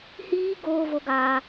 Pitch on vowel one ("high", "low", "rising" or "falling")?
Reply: high